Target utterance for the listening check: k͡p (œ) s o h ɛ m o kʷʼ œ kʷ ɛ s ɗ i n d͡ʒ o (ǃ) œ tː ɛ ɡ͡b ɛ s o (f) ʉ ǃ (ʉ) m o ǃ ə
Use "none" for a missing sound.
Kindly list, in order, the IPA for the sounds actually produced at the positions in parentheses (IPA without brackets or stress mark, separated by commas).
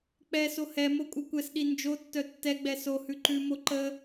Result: ɛ, tː, h, ʉ